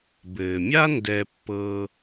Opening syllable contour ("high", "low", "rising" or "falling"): low